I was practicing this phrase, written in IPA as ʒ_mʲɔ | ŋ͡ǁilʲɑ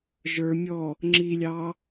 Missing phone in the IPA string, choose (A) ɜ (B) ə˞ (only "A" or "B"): B